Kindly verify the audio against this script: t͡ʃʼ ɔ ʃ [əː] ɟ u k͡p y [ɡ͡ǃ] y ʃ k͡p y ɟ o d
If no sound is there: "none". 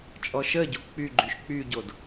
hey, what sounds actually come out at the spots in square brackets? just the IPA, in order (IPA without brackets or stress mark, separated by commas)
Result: əː, ɡ͡ǃ